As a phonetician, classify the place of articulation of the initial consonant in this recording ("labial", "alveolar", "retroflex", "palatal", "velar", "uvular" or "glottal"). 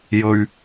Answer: palatal